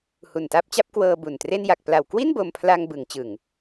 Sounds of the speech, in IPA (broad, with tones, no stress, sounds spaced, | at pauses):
h u˨˩ n t a˦˥ p̚ t͡ɕ a˦˥ p̚ k w ɤː˧ b u˨˩ n t r e˥˩ n j a˨˩ k̚ p l a˨˩ w k w i˥˩ n b o˧ m pʰ l a˧ ŋ b ɯ˩˦ ŋ t͡ɕ ɯ˨˩ ŋ